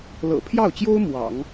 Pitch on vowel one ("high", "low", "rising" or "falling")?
low